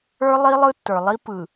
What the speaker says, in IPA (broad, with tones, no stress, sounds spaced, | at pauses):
ə˞˦ lˠ i˦ lˠ ɯ˦ tː ə˞˨ lˠ i˦ p ɯ˨